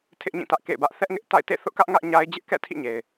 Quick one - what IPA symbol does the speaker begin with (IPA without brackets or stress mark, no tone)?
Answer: tʰ